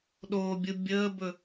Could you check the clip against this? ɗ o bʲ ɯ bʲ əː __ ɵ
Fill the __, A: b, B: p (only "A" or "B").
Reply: A